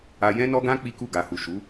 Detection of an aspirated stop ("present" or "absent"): absent